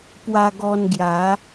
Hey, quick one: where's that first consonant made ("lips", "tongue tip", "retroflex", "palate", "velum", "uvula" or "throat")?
lips